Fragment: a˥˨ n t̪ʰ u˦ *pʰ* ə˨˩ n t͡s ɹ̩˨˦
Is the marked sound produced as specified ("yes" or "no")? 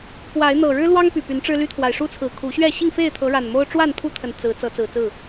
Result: no